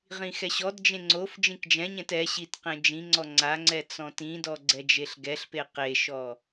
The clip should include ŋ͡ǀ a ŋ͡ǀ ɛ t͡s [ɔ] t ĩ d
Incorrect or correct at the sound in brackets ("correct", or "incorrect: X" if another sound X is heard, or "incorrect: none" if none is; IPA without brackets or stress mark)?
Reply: incorrect: ɔ̃